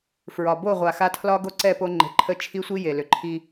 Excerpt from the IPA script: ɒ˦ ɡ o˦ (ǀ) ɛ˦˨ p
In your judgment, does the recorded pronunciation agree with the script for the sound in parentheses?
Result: yes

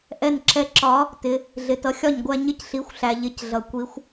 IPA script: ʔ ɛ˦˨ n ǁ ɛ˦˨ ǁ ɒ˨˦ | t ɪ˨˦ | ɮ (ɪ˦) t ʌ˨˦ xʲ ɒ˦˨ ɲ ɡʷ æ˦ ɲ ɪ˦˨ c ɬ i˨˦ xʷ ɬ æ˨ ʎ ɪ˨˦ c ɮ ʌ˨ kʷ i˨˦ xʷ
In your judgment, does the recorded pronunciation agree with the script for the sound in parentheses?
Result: no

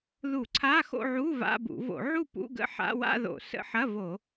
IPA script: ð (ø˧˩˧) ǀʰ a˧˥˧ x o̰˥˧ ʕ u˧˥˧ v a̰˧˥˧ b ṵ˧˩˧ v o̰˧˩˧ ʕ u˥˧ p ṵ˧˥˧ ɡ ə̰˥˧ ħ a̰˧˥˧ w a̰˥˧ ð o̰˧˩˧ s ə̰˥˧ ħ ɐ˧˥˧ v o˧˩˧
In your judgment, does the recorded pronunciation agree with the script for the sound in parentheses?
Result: no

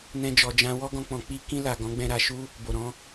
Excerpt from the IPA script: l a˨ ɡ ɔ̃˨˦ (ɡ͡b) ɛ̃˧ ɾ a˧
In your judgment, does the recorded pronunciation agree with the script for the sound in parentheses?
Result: yes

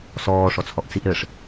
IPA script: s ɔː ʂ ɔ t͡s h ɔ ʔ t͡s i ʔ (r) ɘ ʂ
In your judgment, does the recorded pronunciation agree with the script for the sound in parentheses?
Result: no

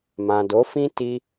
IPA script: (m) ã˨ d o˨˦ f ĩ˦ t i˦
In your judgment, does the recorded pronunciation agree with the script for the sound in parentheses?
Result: yes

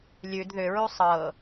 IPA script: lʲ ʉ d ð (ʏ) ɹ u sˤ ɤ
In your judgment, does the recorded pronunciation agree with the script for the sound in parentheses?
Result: yes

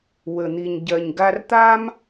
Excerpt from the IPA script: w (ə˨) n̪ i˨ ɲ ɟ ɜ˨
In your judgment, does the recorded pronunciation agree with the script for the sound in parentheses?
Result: yes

